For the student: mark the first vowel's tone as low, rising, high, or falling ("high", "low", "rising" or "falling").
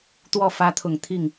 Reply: falling